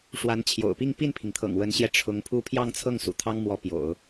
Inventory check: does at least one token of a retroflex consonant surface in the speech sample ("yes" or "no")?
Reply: yes